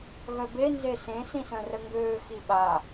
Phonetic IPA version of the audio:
ɣ œ b e n z e s ẽ s ĩ s œ̃ r ə ŋ ɡ øː x i ɓ a

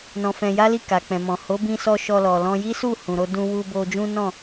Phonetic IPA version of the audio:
n ɔ̃˧ f ɛ̃˧ j a˦ l i˦˨ k a˨ k͡p ɛ̃˨ m ɔ̃˨ h o˨˦ b ĩ˧ s ɔ˧ ʃ ɔ˧ l ɔ˨ l ɔ̃˧ j i˦ s u˦˨ h ũ˨ ɾ o˧ d ũ˧ w u˧ b o˧ d͡ʒ ũ˦ n ɔ̃˦˨

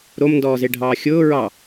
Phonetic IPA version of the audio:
ɾ o m n d ɔː z e ɖʱ ɑː xʲ ʊː ɹ ɑ

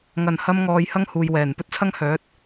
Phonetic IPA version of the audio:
ŋ ɐ˨˩ n h ɐ˧ m ŋ ɔː˨ j h ɐ˥ ŋ h uː˨ j w ɛː˨˩ n p ɵ˥ t̚ t͡sʰ ɐ˥ ŋ h œː˨˥ t̚

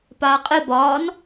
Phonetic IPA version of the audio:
p aː qʼ i b ɒː n

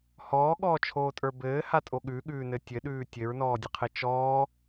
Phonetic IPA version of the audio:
h ɔː ɠ ɔː t͡ʃʰ oː tʼ ə˞ b ɘː h a tʼ o ɠ ʉ ɠ ʉː n ɘ tʲ ɘ ɗ ʉː tʲ ɘ ɹ n ɔː dʲ ɘ qʰ ɘ t͡ʃ ɔː

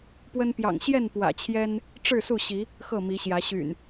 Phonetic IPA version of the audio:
p w ə˦ n p j ɑ̰˨˩ ŋ ɕ j ɛ˥˨ n p w ä̰˨˩ t͡ɕʰ j ɛ˦ n | ʈ͡ʂ ɻ̩˥˨ s u˥˨ ɕ i˨˦ | x ɤ˥˨ m i˨˦ ɕ j ä˨˦ ɕ y̰˨˩ n

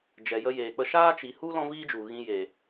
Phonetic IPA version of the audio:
d͡ʒ ɛ˨ j ə˧ j eː˨ k͡p ə˧ ʃ aː˦ t͡ʃ i˨ h u˦ l ɔ̃˦ v iː˦ d͡ʒ u˨ ɣ ĩ˧ j e˨

